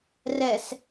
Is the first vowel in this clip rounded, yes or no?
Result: no